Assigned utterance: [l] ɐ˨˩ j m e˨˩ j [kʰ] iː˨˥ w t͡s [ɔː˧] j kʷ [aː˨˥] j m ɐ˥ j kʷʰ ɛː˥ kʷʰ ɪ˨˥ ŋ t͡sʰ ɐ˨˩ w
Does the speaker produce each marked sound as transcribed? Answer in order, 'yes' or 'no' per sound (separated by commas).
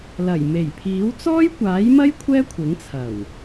yes, no, no, yes